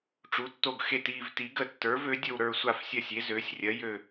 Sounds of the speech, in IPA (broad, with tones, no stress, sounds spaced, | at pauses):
ʈ͡ʂ u˩˥ tː o˦˨ ɡ x e˦˨ t iː˦˨ v t i˩˥ ɡ ə˦˨ tː ə˞˩˥ v ø˩˥ dʲ ə˦˨ w ɾ ə˞˦˨ sʷ a˦˨ f sʲ ɜ˦˨ sʲ e˩˥ z øː˩˥ sʲ rʲ ɜ˩˥ j ø˦˨